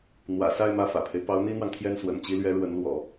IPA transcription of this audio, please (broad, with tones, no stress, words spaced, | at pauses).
n̪wä̰˨˩sa˥˧ɪ̯ mä˥˩fä̰˨˩pʰe˦ɪ̯ pɑ˧˥ʊ̯n̪i˥n̪wɑ˨ŋt̪ʰjɛ˥˩n swə̰˨˩nt͡ɕi˧˥lɥɛ˧˥ ɻwə˧˥nlwɔ̰˨˩˦